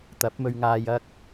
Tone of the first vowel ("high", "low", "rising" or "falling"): rising